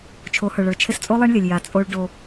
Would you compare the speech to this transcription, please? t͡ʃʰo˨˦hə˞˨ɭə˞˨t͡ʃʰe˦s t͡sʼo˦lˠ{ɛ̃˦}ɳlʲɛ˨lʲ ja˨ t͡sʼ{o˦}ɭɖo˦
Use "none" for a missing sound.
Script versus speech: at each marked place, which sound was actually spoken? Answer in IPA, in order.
ɛ˦, o˦

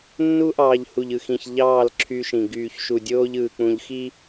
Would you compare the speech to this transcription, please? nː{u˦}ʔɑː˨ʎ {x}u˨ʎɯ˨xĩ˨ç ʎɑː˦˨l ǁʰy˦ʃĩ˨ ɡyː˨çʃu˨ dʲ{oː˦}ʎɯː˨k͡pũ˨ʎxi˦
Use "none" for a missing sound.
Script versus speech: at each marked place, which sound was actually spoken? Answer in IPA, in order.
u˦, h, oː˦

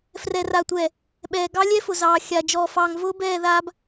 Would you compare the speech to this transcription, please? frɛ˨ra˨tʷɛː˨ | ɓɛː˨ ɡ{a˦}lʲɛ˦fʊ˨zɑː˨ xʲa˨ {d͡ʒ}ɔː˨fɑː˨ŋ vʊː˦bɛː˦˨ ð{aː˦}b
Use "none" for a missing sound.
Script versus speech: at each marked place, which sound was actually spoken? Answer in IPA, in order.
ɑ˦, d͡ʒ, aː˦

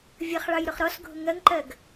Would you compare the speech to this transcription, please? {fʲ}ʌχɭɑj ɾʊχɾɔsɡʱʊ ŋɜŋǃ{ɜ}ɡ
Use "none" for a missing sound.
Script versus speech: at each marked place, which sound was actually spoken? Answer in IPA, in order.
vʲ, ɜ

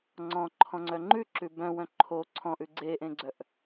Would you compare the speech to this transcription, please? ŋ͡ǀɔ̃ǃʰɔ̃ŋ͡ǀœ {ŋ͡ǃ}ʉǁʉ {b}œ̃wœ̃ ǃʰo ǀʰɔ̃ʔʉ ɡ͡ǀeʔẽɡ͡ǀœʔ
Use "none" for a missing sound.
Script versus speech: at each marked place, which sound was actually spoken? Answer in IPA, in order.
ŋ͡ǃ, b

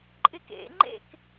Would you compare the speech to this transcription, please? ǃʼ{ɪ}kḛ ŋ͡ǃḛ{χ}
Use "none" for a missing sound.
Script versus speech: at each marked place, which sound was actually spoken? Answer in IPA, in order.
ɪ, k

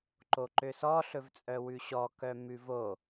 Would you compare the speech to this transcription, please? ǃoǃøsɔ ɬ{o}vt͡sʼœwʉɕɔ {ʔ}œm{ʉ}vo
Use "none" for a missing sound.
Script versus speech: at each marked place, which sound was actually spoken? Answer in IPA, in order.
ɵ, k, ʉ

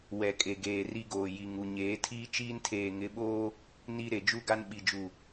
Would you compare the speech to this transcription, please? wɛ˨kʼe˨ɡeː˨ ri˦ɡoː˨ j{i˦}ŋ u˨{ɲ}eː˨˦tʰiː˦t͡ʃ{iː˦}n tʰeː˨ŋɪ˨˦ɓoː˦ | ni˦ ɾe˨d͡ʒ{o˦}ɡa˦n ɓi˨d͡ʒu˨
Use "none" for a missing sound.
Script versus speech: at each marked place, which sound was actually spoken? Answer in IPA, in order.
i˨, ɲ, iː˦, u˦

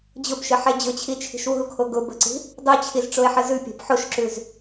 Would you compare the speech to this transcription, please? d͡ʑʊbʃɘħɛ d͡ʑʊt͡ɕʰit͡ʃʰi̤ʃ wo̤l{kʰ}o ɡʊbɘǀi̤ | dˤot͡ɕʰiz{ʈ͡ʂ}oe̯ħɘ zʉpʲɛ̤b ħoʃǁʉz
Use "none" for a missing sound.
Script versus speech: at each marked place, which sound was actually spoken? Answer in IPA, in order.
kʰ, ʈ͡ʂ

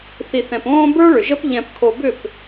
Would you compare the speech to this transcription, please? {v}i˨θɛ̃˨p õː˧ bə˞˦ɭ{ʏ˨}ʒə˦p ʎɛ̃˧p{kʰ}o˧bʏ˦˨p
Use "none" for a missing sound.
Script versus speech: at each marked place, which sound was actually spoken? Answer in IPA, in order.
θ, ʏ˨, kʰ

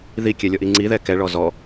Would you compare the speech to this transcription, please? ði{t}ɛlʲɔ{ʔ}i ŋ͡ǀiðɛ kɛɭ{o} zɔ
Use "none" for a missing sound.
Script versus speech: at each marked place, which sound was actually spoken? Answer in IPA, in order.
kʲ, ʔ, ɔ

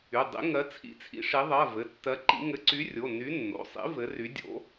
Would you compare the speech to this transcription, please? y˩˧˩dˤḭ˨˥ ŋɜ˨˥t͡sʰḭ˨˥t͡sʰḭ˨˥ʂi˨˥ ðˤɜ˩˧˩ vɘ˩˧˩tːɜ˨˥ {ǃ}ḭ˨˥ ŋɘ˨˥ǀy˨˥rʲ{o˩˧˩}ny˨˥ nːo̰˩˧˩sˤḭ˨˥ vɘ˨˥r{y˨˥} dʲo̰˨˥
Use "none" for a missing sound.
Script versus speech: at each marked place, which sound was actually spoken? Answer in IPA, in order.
ǃ, o˩˧˩, y˨˥

